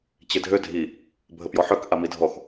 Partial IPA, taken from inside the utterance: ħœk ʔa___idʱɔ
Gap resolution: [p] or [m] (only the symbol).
m